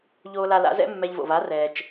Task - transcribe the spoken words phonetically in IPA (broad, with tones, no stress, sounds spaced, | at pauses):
ʎ oː˧ l a˧ l a̰˩˥ z ɛ̰˥ mː ɛ˧ ʎ v o̰˩ v a˩˥ r ɛː˩ t͡ʃ